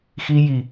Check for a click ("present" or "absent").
absent